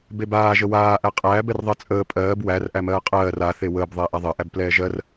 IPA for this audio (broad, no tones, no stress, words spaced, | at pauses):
bebaː ʒəwaː ʔæqʼæːb ɛrðˤɜt͡sʼəː pʼɜːb wær ʔæmɜːqʼɜːr a θewəːb ðˤeːʔaðˤɜʔæb plɛːʒɜr